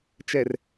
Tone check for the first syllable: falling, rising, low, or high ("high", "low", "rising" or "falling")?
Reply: low